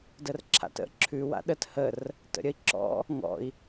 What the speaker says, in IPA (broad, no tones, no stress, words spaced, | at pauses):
dərǁʰa̰tə̰ ǁʰʉ wa̰ɗət hər | tə̰ɾʲəi̯ǁɔ̰ | ŋɔ̰i̯